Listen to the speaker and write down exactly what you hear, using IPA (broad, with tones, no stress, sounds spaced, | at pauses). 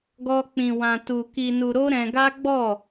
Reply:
ɡ ɔ˦ k͡p ĩ˧ w ã˧ t u˧ k i˧ n u˧ ɾ o˦ ɾ ɛ̃˧ ɡ a˦ ɡ͡b ɔ˦˨